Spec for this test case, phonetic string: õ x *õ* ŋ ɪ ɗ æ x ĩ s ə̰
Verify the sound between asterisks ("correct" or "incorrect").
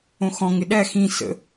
incorrect